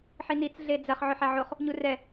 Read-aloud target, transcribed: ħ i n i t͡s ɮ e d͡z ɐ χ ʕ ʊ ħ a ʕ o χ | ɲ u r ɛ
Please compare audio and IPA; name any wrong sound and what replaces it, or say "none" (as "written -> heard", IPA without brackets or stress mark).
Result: none